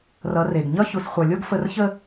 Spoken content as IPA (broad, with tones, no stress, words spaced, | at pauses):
rʌ˨˦re˨ɡ ɲʌ˦çu˨sχʷʌ˨lʲo˦ɡ fə˦r çə˦